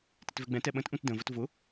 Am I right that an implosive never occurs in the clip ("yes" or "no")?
no